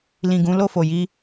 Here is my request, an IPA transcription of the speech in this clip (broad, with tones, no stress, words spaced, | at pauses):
lĩ˨ɡũ˨˦ lo˦˨fo˨ji˧